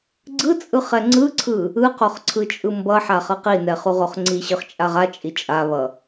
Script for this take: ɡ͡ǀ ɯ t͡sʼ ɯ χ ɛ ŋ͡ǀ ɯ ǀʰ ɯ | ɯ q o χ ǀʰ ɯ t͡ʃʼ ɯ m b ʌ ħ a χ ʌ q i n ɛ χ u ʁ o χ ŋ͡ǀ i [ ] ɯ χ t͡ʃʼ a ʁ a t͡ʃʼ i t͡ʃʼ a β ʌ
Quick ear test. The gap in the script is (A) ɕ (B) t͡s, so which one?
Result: A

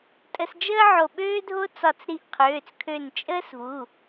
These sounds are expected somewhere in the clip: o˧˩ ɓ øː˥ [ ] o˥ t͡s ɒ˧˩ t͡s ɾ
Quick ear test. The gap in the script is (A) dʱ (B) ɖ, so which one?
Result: A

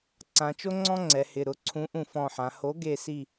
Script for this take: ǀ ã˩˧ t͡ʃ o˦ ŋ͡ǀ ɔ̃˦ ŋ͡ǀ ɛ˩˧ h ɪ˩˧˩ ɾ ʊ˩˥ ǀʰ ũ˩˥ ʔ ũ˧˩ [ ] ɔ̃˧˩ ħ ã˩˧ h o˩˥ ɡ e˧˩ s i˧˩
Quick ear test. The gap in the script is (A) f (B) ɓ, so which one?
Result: A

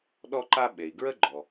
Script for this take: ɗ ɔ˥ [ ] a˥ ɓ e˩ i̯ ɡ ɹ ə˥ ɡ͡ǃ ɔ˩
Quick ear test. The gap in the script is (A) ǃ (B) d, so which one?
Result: A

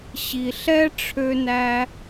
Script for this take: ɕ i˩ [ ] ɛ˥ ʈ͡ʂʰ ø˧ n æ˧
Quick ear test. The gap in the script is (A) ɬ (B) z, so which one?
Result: A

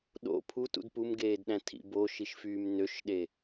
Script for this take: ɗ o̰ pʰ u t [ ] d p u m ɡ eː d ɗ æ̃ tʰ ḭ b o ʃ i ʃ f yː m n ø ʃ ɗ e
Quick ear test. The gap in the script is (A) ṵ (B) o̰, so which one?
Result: A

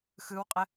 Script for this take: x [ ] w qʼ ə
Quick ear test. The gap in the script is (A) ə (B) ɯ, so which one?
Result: B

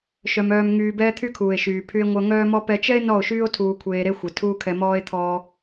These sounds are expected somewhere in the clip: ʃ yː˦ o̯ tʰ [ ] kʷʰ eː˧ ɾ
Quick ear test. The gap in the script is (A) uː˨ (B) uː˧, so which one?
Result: B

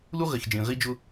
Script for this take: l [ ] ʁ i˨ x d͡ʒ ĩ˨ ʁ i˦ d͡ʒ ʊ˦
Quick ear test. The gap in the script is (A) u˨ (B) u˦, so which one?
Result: B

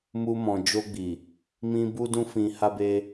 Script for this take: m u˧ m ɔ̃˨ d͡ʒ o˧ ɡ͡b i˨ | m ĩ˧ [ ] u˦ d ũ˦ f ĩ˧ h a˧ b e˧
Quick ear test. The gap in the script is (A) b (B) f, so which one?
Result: A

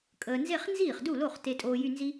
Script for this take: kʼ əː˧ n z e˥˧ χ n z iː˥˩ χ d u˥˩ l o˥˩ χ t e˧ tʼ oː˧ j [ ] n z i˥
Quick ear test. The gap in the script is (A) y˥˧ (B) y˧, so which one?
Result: A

